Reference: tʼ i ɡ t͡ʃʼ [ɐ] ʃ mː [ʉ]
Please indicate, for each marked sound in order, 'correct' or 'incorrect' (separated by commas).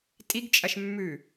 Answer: correct, correct